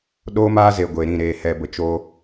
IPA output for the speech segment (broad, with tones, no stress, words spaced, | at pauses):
ɗoː˦maː˦ze˨ ɡʷe˨ɾĩ˦˨ ɾeː˨hɛ˨ bə˨t͡ʃo˧